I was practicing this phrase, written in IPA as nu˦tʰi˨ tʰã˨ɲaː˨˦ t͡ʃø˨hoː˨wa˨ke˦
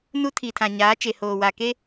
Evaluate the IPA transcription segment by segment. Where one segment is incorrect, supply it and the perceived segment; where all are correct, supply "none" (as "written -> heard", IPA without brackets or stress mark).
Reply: ø˨ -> e˨